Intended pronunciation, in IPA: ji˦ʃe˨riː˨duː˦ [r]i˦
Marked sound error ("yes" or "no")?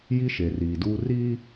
no